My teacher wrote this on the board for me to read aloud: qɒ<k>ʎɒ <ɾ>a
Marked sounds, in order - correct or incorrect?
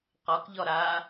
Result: correct, correct

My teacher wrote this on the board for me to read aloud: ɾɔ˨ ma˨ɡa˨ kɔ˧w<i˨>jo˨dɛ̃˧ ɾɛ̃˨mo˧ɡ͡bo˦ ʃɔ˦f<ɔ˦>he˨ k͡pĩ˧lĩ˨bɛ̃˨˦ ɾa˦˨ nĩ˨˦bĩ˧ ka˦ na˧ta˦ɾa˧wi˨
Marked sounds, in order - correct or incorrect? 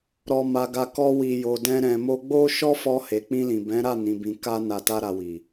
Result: correct, incorrect: ɔ˧

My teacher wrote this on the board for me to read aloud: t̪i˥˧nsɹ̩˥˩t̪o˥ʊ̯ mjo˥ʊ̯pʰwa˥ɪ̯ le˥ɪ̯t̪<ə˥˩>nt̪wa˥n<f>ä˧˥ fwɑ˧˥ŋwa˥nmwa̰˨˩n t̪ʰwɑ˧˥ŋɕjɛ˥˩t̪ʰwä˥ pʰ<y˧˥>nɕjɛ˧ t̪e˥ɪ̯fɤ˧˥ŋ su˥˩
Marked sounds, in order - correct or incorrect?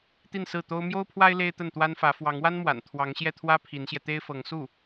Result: correct, correct, incorrect: i˧˥

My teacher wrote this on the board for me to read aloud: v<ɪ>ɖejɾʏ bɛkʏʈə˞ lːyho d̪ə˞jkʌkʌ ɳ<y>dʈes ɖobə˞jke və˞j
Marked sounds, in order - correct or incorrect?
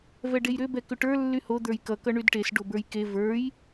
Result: incorrect: ɛ, correct

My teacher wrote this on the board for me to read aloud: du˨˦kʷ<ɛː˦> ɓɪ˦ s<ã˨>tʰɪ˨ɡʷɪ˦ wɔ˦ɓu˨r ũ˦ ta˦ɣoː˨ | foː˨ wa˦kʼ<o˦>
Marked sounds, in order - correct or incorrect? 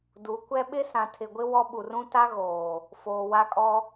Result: incorrect: ɛ˦, correct, incorrect: ɔ˦

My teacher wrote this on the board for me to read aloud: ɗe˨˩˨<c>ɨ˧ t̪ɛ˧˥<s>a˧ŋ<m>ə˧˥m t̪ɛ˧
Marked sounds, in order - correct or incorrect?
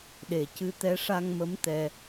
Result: correct, incorrect: ʂ, correct

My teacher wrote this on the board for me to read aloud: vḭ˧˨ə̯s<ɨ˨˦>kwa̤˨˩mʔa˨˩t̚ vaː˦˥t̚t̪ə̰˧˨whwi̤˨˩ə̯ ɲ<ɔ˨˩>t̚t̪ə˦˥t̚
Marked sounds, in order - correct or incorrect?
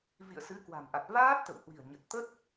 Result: correct, incorrect: ə˨˩

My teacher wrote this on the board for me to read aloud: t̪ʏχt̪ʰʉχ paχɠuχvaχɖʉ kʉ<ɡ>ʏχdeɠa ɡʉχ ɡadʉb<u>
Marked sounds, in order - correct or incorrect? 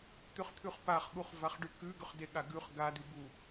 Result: correct, correct

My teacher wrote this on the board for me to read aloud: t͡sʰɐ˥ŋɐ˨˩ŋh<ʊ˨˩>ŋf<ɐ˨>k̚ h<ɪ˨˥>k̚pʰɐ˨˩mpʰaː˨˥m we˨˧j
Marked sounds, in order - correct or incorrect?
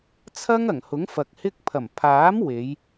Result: incorrect: ʊ˨˥, correct, incorrect: ɪ˧

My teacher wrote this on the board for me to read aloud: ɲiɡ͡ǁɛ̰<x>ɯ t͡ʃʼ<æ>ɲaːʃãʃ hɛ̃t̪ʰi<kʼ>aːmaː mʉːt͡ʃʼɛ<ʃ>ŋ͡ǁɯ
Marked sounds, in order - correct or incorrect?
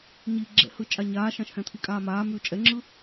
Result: incorrect: h, incorrect: a, correct, incorrect: none

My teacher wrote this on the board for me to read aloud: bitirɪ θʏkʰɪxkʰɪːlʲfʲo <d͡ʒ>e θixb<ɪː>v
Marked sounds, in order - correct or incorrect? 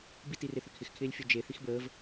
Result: correct, incorrect: əː

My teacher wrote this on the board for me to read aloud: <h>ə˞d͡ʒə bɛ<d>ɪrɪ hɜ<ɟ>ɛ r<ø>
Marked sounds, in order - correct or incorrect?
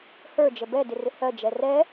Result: correct, correct, incorrect: d͡ʒ, incorrect: ɛ

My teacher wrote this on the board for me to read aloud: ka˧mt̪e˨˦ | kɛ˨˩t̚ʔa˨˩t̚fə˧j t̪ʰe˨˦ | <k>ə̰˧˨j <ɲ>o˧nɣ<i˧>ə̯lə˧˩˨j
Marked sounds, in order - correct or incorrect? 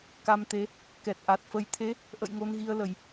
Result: incorrect: ʔ, incorrect: ŋ, correct

